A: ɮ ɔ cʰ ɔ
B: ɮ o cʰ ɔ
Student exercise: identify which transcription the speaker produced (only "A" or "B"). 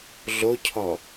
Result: B